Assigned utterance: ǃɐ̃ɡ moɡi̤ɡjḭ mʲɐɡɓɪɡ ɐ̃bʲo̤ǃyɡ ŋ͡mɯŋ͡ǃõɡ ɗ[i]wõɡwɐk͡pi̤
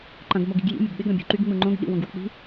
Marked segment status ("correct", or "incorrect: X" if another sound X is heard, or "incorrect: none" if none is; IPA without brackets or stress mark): incorrect: ḭ